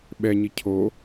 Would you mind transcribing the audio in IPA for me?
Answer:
ɓ ɛ ɲ i cʰ o

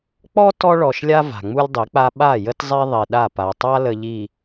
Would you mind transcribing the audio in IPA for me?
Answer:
k͡p ɔ˦ t ɔ˦ ɭ ɔ˨ ʃ lʲ a˦ v a̤˨ ŋ͡m u˦ lʲ dˤ i˨˦ k͡p a˦ ɓ a˦˨ j ə˦ t zˤ ɛ˦ ðˤ i˨ ɗ a˦˨ p a˨ tˤ a˦ l ə˨ ʎ i˨

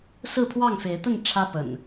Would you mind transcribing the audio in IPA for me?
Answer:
s ɹ̩˥˨ pʰ w ɑ˥˨ ŋ f e˨˦ ɪ̯ t̪ ə˥˨ n ʈ͡ʂʰ ä˦ p ə̰˨˩ n

